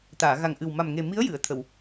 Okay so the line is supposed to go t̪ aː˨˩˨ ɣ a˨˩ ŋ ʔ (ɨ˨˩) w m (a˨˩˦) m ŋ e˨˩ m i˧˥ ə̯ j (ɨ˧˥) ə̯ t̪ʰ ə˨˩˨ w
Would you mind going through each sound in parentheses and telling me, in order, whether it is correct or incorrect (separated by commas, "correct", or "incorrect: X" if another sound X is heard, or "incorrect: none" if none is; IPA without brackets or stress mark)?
correct, incorrect: a˨˩, incorrect: ɨ˨˩˨